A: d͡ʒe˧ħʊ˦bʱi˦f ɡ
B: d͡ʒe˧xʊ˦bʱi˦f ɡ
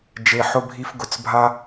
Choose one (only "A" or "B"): A